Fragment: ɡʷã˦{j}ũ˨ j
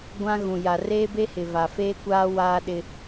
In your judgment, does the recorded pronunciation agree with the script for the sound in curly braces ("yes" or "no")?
no